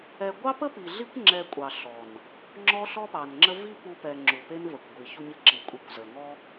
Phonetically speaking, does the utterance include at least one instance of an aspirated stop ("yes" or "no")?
no